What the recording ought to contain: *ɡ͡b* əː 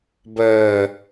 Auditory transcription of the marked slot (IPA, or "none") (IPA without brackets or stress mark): b